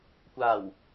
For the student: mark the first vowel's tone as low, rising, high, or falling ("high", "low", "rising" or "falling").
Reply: low